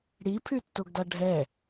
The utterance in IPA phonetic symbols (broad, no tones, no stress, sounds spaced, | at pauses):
ɽ i pʰ y tː o ɡ d a ɖʱ ɛ